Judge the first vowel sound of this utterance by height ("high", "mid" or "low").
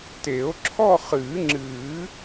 mid